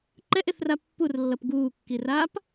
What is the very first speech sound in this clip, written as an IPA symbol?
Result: ǃ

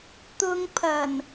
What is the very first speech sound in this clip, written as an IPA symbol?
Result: t̪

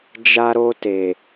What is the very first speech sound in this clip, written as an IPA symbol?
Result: d͡ʒ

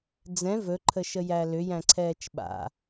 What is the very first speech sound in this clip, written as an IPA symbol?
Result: d͡z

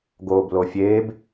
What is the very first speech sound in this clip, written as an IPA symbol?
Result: ɡ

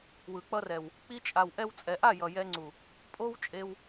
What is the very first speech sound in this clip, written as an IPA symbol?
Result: w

